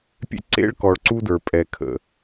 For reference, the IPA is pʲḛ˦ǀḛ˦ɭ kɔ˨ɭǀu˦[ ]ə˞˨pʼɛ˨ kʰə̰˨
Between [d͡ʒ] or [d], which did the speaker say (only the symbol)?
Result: d